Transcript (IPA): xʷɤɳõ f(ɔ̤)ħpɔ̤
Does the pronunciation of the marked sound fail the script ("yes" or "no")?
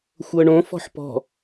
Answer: no